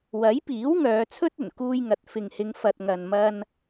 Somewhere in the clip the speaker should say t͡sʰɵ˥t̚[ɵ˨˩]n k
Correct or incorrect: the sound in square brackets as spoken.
correct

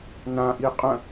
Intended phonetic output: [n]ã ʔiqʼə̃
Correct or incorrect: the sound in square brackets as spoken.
correct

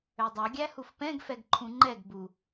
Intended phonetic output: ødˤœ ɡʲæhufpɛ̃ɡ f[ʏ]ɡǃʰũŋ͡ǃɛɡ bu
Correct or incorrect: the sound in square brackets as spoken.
incorrect: ɛ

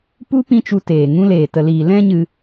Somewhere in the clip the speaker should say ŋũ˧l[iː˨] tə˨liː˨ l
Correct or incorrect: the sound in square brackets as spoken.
incorrect: eː˨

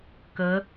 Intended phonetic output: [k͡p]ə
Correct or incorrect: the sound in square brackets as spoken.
incorrect: k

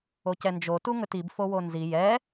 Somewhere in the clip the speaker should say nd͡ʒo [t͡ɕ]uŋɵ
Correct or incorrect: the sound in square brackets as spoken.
incorrect: t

